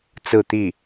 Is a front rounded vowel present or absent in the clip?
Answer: absent